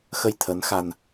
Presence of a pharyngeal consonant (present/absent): absent